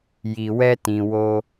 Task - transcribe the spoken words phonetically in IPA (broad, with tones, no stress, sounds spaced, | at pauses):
j i˨ w ɛ˧ t ĩ˨ w o˧